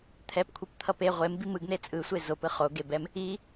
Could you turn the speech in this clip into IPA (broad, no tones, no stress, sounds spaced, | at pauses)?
t̪ʰ ɛ p kʷʰ i p t̪ʰ ʌ p e ʁʷ e m b i m ɯ ɡ n̪ e t͡sʼ ɯ sʷ e z o p ɯ χ o ɡ e b ɛ m | i